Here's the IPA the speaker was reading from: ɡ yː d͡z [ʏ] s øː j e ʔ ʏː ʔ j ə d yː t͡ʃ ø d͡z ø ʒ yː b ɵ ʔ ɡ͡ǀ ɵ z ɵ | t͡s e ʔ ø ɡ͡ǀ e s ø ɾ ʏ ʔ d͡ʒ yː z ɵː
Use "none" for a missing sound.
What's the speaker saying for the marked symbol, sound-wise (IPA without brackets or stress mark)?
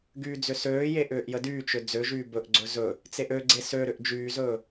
ʏ